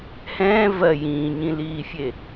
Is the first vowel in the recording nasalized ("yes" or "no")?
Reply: yes